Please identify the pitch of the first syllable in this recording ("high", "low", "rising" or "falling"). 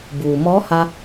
low